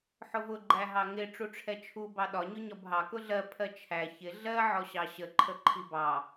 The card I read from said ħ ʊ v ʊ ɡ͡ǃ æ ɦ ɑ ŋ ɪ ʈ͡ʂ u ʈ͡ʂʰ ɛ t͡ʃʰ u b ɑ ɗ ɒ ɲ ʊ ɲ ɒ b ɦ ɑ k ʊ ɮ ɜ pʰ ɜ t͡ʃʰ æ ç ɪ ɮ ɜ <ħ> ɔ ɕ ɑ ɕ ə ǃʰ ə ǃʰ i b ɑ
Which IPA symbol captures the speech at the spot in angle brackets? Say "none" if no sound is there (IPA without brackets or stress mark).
ʕ